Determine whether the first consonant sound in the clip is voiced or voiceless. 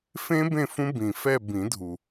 voiceless